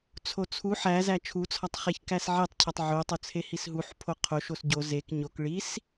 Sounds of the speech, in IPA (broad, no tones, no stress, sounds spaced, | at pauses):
t͡sʰ o t͡sʰ u ħ æ z æ t͡ʃʰ u t͡sʰ ɒ tˤ χ e ç k æ s ʕ e tˤ cʰ ɒ tˤ ʕ o tˤ o t͡sʰ e h i s ɦ u ħ pʰ o qʰ o ʃ o s ɟ o z e k ɲ o k ɭ i s